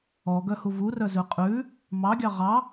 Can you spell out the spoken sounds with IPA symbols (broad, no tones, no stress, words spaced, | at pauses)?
ɔɡœhu vurœzʉ qʼʉ | mɑɡʲɑ ʁɑ